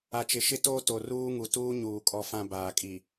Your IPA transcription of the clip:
a˨ t͡ʃ ɪ˨ ʃ ɪ˦ t oː˦ t o˨ r uː˦ ŋ u˨ t uː˦ ɲ uː˨ kʼ ɔ˦ f ã˦ b aː˨ kʼ i˨

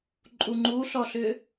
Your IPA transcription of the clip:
ǃʼ u ŋ͡ǃ u ɬ ɔ ɬ ʏ

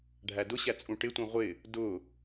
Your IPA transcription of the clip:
ɖʱ æ d ʊ ɕ æ t͡sʼ ũ ʈ ɪ tʷ ĩ ʁʷ ɪ | d ʊ

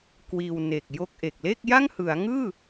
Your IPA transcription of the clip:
k w iː˧ w n e˨˩ k̚ j o˥˩ k̚ ʔ e˨˩ k̚ l e˥˩ k̚ j a˥˩ ŋ h ɯ˩˦ a̯ ŋ ɯː˥˩

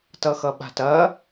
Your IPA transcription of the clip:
t ʌ x ʌ ɓ a̤ t ɐ

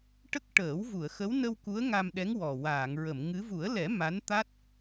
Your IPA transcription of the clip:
ʈ ə˦˥ k̚ ʈ əː˨˩˦ w v u˨˩˨ ə̯ x ə˧˥ w n ə˧ w k u˧˥ ə̯ ŋ a˧ m ɗ ɛ˧˥ ŋ w ɔ˨˩ w aː˨˩˨ ŋ ɹ ə˨˩˨ m ŋ ɨ˧˥ v u˨˩˦ ə̯ l ɛ˨˩˦ m a˧˥ n t̪ a˦˥ t̚

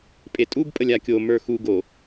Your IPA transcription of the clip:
pʼ e tʼ u b pʼ ə lʲ a kʲ o m ə˞ x u ɡ o

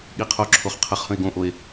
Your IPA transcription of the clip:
ɠ i qʰ o ǁʰ o χ qʰ ə χ h ə̃ e̯ ɡ õ ʔ o e̯

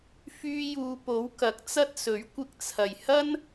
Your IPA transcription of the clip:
f yː˧ j uː˨ p o˨˥ w k ɐ˨˥ k̚ t͡s ɐ˥ t̚ s ɵ˨˥ ɥ kʷ ɪ˧ k̚ t͡sʰ ɐ˨˩ j h ɐ˥ n

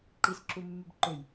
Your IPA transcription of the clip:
ǃ i s ǁ u mː y b ǃ ø j

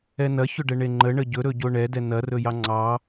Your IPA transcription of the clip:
ɛ n ɐ ç ɵ ɖ ɛ ɳ e ŋ͡ǃ ə ɳ ə ɟ ɵ ɾ ɵ ɟ o ɳ ɛ d ɛ n ɐ r ɵ j ɑ ŋ͡ǀ ɑ

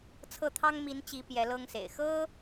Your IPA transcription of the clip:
t͡sʰ ɤ˥˩ t̪ʰ ɑ˥ ŋ m i˧˥ n t͡ɕ i˧˥ p j ɛ˧˥ l ɤ˥ ŋ s ḛ˨˩ ɪ̯ x ɤ˥

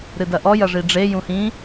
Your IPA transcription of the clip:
ɾ ɨ d ɐ ʔ ɔ j ɐ ʐ i ɖ͡ʐ e j ũ h ĩ

